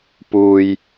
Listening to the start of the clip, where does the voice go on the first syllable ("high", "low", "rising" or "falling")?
low